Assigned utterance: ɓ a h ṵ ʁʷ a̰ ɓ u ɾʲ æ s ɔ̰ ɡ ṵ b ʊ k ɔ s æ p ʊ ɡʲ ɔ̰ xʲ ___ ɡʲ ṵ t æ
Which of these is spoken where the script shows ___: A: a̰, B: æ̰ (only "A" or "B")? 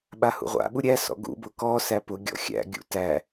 B